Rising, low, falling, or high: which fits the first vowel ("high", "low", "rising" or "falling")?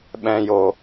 low